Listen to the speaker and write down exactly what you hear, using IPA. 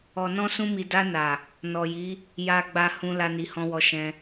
ɔ˨ n ɔ̃˧ s ũ˧ m i˨ d a˧ n a˨ | n ɔ˨ j i˨˦ | j a˨ ɡ͡b a˨ h ũ˧ l a˦ n i˧ h ɔ̃˦ w ɔ˧ ʃ ɛ̃˧

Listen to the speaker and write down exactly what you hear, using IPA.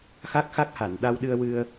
x a˦˥ k̚ x a˦˥ k̚ h a˨˩˨ n ɗ a˧ w ɗ ɨ˧ ə̯ w ɨ˧ ə̯

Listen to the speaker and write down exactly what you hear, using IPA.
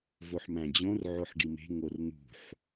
v o ħ m æ̃ d͡ʑ õ r ʕ o ħ ɖ i m e̤ ŋ o r n̪ ṳ ħ

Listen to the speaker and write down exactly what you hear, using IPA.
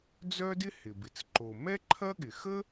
d͡z œ˥ d ɪ˥ h ɪ˩ b ɪ˩ t͡s ǃ o˩ m ɛ˥ ǃʰ ɐ˥ ɠ ɪ˩ x ə˥

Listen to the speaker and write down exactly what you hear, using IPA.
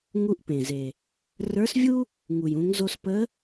ŋ u˧ ʔ p ẽ˩ z e˩ | r ə˞˧˥ s vʲ u˥ | ŋ u˩ j ũ˩˧ ŋ z o˧ s p ə˧˥

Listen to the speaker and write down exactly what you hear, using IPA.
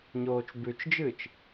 ɲ oː t͡ʃ b ʉ t͡ʃ d͡ʒ ɨː t͡ʃ

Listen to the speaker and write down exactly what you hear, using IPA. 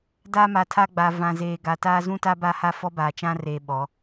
d a˦ m a˨ tʰ a˦ ɡ͡b a˨ v ã˨ z eː˨ ɡ a˨ t aː˦ z ũ˦ t a˦ b a˦ h a˦ f ɔ˦ b aː˨ t͡ʃ ã˦ r eː˨ ɓ ɔ˨˦

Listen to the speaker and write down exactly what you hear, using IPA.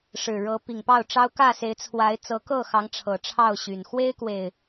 ʂ ɻ̩˨˩ ɻ ɤ˨˦ p i˨˩ ŋ p ɑ˥˨ ʊ̯ ʈ͡ʂ ɑ˦ ʊ̯ k ä˥˨ s e˨˦ ɪ̯ t͡sʰ w a˨˦ ɪ̯ t͡s ɤ˨˦ k ɤ˥˨ x ɑ˨˦ ŋ ʈ͡ʂʰ ɤ˨˩ ʈ͡ʂʰ ɑ˥˨ ʊ̯ ɕ y˨˩ n x w e˦ ɪ̯ k w e˨˩ ɪ̯

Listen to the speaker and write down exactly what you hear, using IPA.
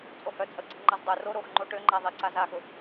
t͡sʼ o h œ t͡sʼ ə ɡ͡ǀ i ŋ͡ǃ ɐ z dˤ ʊ r o ɾ o x ŋ͡ǃ o ʈ ø ŋ͡ǃ a ðˤ i ǀ a z a x ʊ

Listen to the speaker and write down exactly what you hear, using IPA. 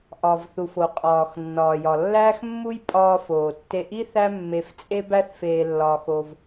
ʔ ɒ˩ v θ u˩ f o˩ qʼ ɒː˩ x nː ɒː˩ j ɒ˩ lː æː˥ x mː u˥ j pʼ ɒː˧ f oː˩ tː e˧ ʔ i˥ θ æ˥ mː e˧ f t͡sʼ e˥ b æ˥ θ f eː˧ lː ɒː˧ x o˧ v

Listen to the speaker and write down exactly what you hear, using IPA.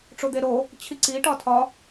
ʈ͡ʂ o d̪ e ɾ o | t͡ɕʰ i ǀ i ʈ ɒ tʰ ɒ

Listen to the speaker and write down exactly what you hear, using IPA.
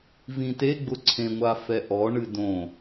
v ĩ t e ɡ͡b ʊ ǀʰ ẽ ŋʷ a f ɛ ʔ ɔ ɳ ɨ d õ

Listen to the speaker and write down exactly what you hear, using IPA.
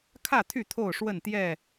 kʰ ä˥˨ t̪ʰ y˥˨ t̪ʰ o˥˨ ʊ̯ ʂ w ə˥˨ n t̪ j ɛ˥˨

